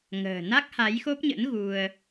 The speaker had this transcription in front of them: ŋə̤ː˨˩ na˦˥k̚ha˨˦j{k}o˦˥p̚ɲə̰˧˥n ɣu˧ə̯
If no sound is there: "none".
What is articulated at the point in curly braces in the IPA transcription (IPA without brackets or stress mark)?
x